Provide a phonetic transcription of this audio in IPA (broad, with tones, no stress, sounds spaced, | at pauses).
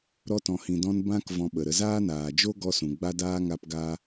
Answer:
ɾ ɔ˧ t ɔ̃˨ h ĩ˨ d ɔ̃˧ n b ã˦ k v ɔ̃˧ ɓ ə˨ ɾ ə˧ z aː˦ n aː˨ d͡ʒ o˦ ɡ ɔ˦ s ũ˨ ɡ͡b a˧ d aː˧ ŋ a˧ p ɡ a˧